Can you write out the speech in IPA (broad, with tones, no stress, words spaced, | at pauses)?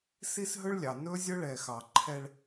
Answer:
si˦sɦɵ˦ɭlʲɑ˨ nɵ˦ zʲɵ˦ɭɛ˨xɑ˨ǃʰɛ˦ɭ